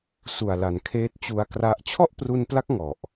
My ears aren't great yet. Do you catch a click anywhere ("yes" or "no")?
no